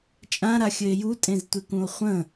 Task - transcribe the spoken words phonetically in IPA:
t͡ʃʼ ã ɾ a xʲ ɘ e̯ j u tʼ ẽ z tʷ e k ũ o̯ χʷ ə̃

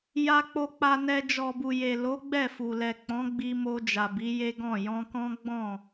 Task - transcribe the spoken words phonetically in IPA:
j a˧ k͡p o˧ k͡p a˧ n ɛ˧ d͡ʒ ɔ˨ b u˨ j e˨ l o˨˦ ɡ͡b ɛ˦˨ f u˨ l ɛ˨ k͡p ɔ̃˨˦ ɡ͡b i˧ m o˧ d͡ʒ a˨ b i˨˦ j e˦ ɡ ɔ̃˦˨ j ɔ̃˧ k ɔ̃˦ ɡ͡b ɔ̃˦˨

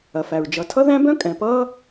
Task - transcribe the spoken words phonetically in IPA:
ɐ˩ f æ˩ ɹ d͡ʒ ʌ˩ tʰ ʌ˥ ð æ̃˥ b œ̃˥ kʼ ɛ̃˩ p ʌː˥

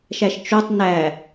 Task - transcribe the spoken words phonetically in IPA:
ʃ æ ʃ t͡ʃ o tˤ n æ

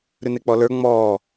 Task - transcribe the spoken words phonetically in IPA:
ɾ ʉ n e k͡p ɔ l ə˞ ŋ͡m ɔː

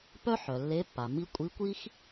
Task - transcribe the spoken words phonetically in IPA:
p œ˦ ħ œ˩ lː e˨˦ pː a˩ m i˨˦ kʷʼ i˨˦ kʷ i˦ x

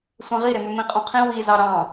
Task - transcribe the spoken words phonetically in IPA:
sʷ ẽ ʁ i ɾ e m ø m ĩ qʼ õ qʰ ĩ w i z ɑ ɾ ɑ̃

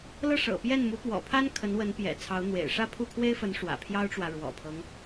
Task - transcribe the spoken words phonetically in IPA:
l ɤ˥˩ ʂ ɤ̰˨˩ p j ɛ˥˩ n m u˧˥ p w ɔ̰˨˩ pʰ a˥ n kʰ ə˧˥ n w ə˧˥ n p j ɛ̰˨˩ t͡sʰ ɑ˧˥ ʊ̯ n̪ w ḛ˨˩ ɪ̯ ʂ ä˥˧ pʰ u˥˩ kʰ w e˥ ɪ̯ f ə˧˥ n ʂ w ä̰˨˩ pʰ j ɑ˥ ʊ̯ ʈ͡ʂ w ä˨ ɻ w ɔ̰˨˩ pʰ ɤ˦ ŋ

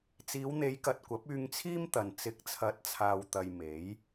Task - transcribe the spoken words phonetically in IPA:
t͡s iː˨˧ w n̪ e˨˧ j k ɐ˨ t̚ kʷ ɐ˨˥ p̚ yː˧ ŋ t͡sʰ iː˥ m t̪ ɐ˨ n t͡s ɪ˨˥ k̚ t͡sʰ ɐ˨˥ t̚ t͡sʰ aː˨ w t̪ ɐ˨ j m e˨˥ j

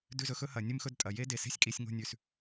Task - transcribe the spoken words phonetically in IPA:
d ʉ˥˧ z ɵ˥ x ɵ˥ h ɐ˧˩˧ nʲ ɨ˥˧ m x ɵ˥˧ d tʼ ɐ˨˩ j e˥ d e˨˩ s e̤˥ sʲ kʼ i˧˩˧ sʲ ŋ o̤˥˧ nʲ ʉ˨˩ s

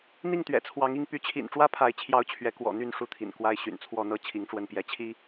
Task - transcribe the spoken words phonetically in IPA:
n̪ i˥˨ ŋ t̪ ɥ ɛ̰˨˩ t͡sʰ w ɑ˨˦ ŋ i˥˨ ŋ p y˨˦ t͡ɕʰ ḭ˨˩ n ʈ͡ʂ w ä˦ pʰ a˨˦ ɪ̯ t͡ɕʰ j ɑ˨˦ ʊ̯ t͡ɕʰ ɥ ɛ˨˦ k w ɔ̰˨˩ n̪ y˥˨ n ʂ u˥˨ t̪ʰ ḭ˨˩ n k w a˦ ɪ̯ ɕ y̰˨˩ n t͡sʰ w ɔ˥˨ n̪ ɤ˦ t͡ɕʰ i˨˦ ŋ ʈ͡ʂ w ə˥˨ n p j ɛ˨˦ t͡ɕʰ i˦

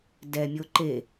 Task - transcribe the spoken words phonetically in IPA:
d ɛ mʲ o ǃ e

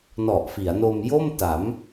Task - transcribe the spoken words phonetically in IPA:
n ɔ˨˩ ʔ f i˩˦ a̯ n o˧ m j o˥˩ m t a˩˦ m

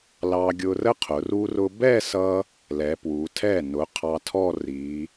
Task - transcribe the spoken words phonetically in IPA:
l ɑ˧ ɡʲ ʊ˧ r ə˥ qʰ ʊ˩˧ r u˧ r ʊ˧ b ɛ˥˧ s ʌ˧ | l ɛ˩˧ p w u˩˧ tʰ ɛ˧˩ n ʊ˩˧ qʰ ɑ˧ tʰ ɔ˥˧ r i˩˧

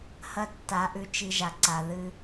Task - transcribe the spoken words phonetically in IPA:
h ɐ˦ tː a˨˦ ʔ ʉ˧ t͡ʃ i˧ ʒ a˨ ǀ a˨ ð ɨ˧

